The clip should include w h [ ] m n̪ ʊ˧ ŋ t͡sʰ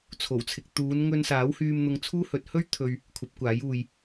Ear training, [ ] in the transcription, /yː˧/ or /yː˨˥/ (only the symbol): yː˧